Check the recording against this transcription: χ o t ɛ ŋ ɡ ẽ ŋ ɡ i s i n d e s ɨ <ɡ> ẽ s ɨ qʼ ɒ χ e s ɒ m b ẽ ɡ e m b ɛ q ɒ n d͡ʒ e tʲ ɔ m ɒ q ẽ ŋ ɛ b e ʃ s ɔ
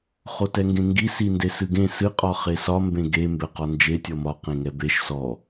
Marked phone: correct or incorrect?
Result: correct